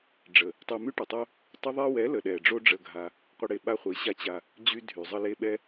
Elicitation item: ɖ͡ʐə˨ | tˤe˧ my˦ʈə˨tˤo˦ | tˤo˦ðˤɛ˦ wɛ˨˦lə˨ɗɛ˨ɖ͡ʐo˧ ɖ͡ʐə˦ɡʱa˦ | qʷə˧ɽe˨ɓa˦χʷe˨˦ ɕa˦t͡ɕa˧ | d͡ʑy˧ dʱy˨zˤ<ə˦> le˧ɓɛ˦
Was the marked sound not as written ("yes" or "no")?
no